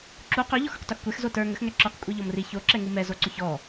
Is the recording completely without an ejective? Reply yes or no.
no